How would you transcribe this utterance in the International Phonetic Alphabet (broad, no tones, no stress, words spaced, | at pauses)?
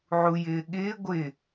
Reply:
ʕujɪː ɠɪː ɡʷɪ